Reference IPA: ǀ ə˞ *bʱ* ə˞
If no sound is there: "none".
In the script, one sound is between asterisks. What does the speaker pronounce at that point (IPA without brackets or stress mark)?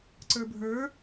bʱ